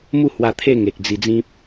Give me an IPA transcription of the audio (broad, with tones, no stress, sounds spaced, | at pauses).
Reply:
m u˥˧ h w a˧ t̪ʰ e˥˧ ŋ e˨ k̚ d͡z i˧ d͡z ĩ˦ p̚